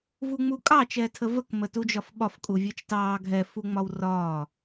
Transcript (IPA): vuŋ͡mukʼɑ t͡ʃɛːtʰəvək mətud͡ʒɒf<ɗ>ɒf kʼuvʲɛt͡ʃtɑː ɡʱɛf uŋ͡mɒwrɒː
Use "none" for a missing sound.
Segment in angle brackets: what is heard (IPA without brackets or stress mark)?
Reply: ɓ